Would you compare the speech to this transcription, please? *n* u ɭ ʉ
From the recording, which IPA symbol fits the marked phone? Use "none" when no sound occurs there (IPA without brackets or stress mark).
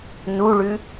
n